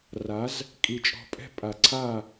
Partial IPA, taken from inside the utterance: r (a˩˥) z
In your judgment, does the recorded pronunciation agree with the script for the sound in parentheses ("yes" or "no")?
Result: yes